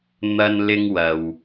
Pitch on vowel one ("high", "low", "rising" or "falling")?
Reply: high